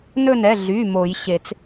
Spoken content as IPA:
n ɵ˦˨ n ɛ˩˧˩ ɮ y˩˧˩ m o˨˩˦ j ɕ e˨˩˦ t͡s

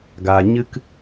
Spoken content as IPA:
ɡ aː˨ ɲ ɨ˦ k

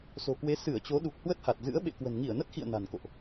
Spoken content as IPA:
s o̤˨˩ k w e˨˦ s ɨ˧˩ ə̯ t͡ɕ o˨˦ ɗ u˨˩ k̚ h w ə˦˥ t̚ h a˨˩ t̚ z ɨ̰˧˥ ə̯ ɓ ḛ˧˨ k w ə̤˨˩ n ŋ i˧˩ ə̯ n ə˦˥ t̚ x ḭ˧˨ ə̯ n a̤˨˩ n k o̰˧˨ ʔ

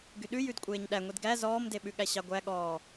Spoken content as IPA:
ɡ y ɗ ʉ j ʉ d kʷʼ eː ɲ ɗ æ ŋʷ i d ɡ æ z ɔː m d e ɓ ʉ ɠ æ ɕ ɑ ɡʷ æ ɠ ɔː

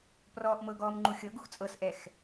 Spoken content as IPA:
p r ɔː ʔ m ɤ ɡ ɔː m ŋ͡ǃ u xʲ ɤ ɡ u x t͡sʼ ɤ s ʔ ɛ x

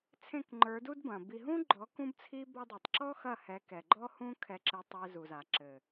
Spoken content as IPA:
t͡sʰ ẽ˦˨ k ŋ͡ǃ ə˞˨˦ d u˦ d b ɐ̃˨ b i˧ ɦ ũ˦ ɡ͡ǃ ɔ˨˦ k ũ˦ b t͡sʰ i˦ b ɔ˧ dˤ e˨ tˤ ǁ ɔ˦ x ɐ˦˨ h ɛ˨˦ k ɛ˨ ɡ͡ǃ ɔ˦ h ũ˦ kʰ ɛ˧ ǁ ɘ˧ tˤ e˧ z u˨ z a˨ ǁ ɘ˨

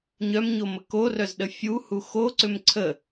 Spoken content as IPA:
ɲ œ m ɲ o m ə k o r œ z ɗ ə fʲ u h u x o ǀ ʏ m ǀʰ ə

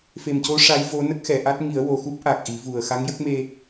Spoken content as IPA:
f e˨˩ m c o˧˥ ʂ a˧˥ j v o˧˥ n ə˦˥ k̚ x ɛ˨˩˨ ʔ a˦˥ t̚ ŋ i˨˩˦ ə̯ w o˨˩ x u˦˥ p̚ ʔ a˨˩ k̚ ʔ i˨˩˦ v u˨˩ ə̯ x a˧˥ ŋ j ə˦˥ k̚ m e˧

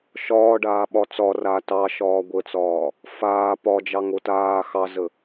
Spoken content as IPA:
ʃ ɒː ɖ aː ɓ ɒ t͡s ɒ r a t ɑ ʃ ɒː ɡʷ ə t͡s ɒː | f aː p ɒ d͡ʒ ɑ ŋ o t aː x ɑ z ə

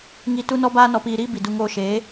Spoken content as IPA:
ŋ i˧ t u˦ n ɔ˦ b aː˦ n ɔ˧ p iː˧ ɾ iː˦ b i˨ d u˧ ŋ oː˧ ʃ eː˨˦

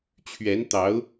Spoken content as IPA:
t͡ɕʰ ɥ ɛ˧˥ n t̪ ɑ˧˥ ʊ̯

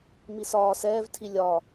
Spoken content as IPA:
m i s ɒː s ɛː v tʰ i lʲ ɒ

